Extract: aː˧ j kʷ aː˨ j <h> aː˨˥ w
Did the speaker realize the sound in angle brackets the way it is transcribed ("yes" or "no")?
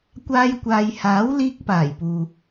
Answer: yes